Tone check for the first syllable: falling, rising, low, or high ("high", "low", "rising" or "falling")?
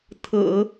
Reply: low